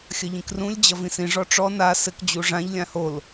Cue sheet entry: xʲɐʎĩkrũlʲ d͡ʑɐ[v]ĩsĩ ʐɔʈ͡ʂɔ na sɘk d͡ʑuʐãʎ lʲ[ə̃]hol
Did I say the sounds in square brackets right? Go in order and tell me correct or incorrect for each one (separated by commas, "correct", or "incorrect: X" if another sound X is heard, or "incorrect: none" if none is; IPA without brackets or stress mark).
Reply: correct, incorrect: ã